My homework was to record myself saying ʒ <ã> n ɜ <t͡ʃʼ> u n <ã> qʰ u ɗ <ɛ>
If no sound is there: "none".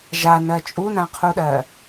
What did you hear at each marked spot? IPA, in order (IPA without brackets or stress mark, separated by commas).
a, t͡ʃʼ, ã, ɜ